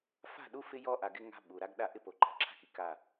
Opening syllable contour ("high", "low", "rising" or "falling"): falling